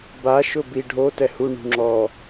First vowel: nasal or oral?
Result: oral